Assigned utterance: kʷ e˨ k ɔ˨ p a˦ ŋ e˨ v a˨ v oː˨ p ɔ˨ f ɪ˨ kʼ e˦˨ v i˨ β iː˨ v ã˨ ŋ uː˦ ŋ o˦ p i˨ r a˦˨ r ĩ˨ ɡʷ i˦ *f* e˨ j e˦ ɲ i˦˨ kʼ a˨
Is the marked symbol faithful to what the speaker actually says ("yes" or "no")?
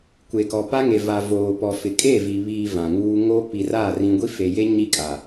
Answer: yes